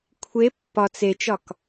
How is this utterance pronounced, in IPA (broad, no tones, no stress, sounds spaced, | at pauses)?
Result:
kʷʰ e pː ɒ t͡s e t͡ʃ ɒ k